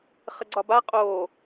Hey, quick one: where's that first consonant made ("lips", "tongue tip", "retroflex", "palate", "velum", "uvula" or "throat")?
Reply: uvula